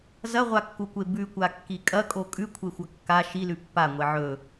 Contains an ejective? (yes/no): yes